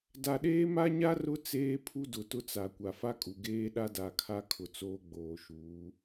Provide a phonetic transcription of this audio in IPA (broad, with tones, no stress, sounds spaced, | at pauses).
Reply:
d a˨ ɗ eː˦ m a˦ ɲ a˦ r ʊ˦ t͡s eː˦ pʰ u˦ d ʊ˨ t ʊ˦ t͡s a˨ kʷ a˨ f a˦ kʼ u˨ ɡ eː˦ ɗ a˦ d a˨ kʰ a˦ kʰ ʊ˨ t͡s oː˦ ɡ͡b oː˨ ʃ uː˨˦